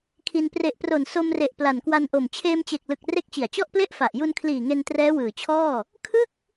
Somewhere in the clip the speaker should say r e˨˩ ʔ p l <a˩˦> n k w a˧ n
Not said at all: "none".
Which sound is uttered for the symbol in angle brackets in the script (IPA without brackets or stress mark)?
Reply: a˨˩